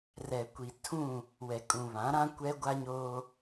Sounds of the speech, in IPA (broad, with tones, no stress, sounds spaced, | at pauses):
r ɛ˨ kʷ i˨ tʰ ũ˦˨ | w ɛ˨ kʼ ũ˨ β ã˨˦ ɾ ã˦ kʷ ɛ˦ ɡʷ a˦ ɲ oː˦